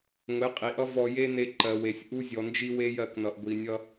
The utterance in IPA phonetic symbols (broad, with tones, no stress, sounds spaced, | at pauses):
ŋʷ e˨˦ qʼ i˨ ʔ ʌ˦ v ɔ˧ j e˦ n e˧ ǃ ɜ˨ w e˨ sʲ ʔ u˦ zʲ ɔ˨ n d͡ʒ i˦ w e˦ j ɜ˧ k n ʌ˨ ʔ ɡʷ i˨ nʲ ʌ˦